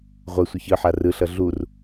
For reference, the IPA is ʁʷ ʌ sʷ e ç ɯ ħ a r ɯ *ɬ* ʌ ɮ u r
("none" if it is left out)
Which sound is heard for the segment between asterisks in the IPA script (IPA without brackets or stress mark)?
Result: ɬ